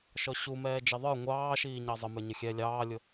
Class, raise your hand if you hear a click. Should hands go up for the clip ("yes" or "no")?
no